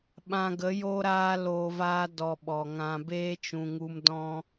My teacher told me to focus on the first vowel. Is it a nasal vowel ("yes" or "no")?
yes